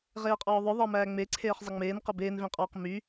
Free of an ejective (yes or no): no